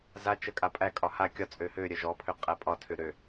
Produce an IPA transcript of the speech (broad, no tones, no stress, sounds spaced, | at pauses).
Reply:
z a t͡ʃ ə kʼ a pʼ æ kʼ ɒ h a kʲ ɒ t͡sʼ ø h ø ɾʲ œ ʒ ɔ pʰ ø qʼ æ pʼ ɒ tʰ ø ɾ ø